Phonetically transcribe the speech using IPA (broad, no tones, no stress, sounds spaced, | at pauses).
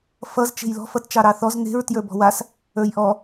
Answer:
f ʌ z t͡ʃ e̤ j l ɔ̤ f ʌ t t͡ʃ ɑ ɾ ɑ θ ɔ z n̪ e̤ ɹ t j ə˞ b ɔ̤ w a s | ə˞ j ʔ ɔ